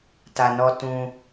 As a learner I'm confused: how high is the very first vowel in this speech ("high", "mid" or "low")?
low